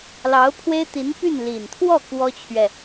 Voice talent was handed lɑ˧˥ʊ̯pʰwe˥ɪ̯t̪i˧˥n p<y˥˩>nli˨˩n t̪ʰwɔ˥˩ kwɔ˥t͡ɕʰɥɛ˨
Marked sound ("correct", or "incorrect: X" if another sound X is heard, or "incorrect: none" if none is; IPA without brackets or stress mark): correct